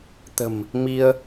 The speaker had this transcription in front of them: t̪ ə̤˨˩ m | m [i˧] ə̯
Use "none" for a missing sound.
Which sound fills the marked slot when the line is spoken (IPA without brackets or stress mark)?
i˧